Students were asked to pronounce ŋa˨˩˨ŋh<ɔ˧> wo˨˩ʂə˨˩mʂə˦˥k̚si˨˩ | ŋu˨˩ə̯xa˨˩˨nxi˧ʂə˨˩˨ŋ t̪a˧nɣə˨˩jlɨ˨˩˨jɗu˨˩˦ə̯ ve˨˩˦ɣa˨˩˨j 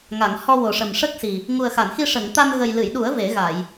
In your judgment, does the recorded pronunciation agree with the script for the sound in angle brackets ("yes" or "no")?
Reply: yes